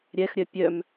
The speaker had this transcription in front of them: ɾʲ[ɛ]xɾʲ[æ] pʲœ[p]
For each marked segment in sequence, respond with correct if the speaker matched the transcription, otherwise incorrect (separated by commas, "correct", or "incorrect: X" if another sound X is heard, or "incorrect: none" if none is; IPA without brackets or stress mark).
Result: correct, incorrect: œ, incorrect: m